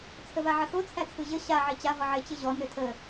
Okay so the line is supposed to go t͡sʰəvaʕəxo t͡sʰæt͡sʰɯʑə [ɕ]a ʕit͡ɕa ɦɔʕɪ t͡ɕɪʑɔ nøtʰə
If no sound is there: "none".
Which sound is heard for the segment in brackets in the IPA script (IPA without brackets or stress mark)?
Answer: ɕ